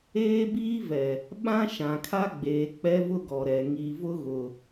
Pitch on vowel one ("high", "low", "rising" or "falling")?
high